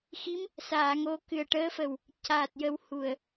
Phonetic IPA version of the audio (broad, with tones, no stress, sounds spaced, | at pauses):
x i˧˥ m | s aː˨˩˨ ŋ o˨˩˦ k ɨ˨˩ ə̯ ʈ əː˧˥ f ə˨˩ w | c aː˨˩ t̚ j ə˨˩˦ w h u˨˩ ə̯